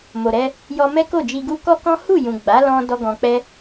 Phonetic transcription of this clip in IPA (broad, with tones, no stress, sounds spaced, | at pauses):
m o˨ ɾ ɛ˧ | j ɔ˧ m ɛ˦ k o˦˨ d͡ʒ i˧ ɡ u˦ k ɔ˦ k ɔ̃˦ h u˦˨ j ũ˨ ɡ͡b a˨˦ l ɔ̃˧ d ɔ˦ ɡ ɔ̃˧ k͡p ɛ˦